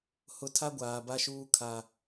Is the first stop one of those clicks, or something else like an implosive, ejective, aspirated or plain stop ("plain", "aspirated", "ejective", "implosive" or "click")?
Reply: aspirated